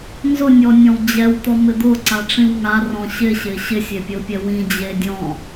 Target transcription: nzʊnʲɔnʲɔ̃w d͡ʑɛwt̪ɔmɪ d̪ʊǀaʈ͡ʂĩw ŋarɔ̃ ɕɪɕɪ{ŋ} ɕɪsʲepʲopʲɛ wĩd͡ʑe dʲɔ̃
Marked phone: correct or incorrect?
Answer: incorrect